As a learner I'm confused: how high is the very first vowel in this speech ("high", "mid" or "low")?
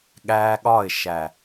low